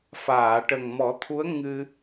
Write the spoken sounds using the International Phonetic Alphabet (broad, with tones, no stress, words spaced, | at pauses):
faː˨˩˨ʈə˨˩ŋmɔ˨˩˦t̪ʰu˧˥ə̯ ŋɨ˧